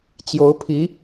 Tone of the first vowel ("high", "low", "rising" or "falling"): rising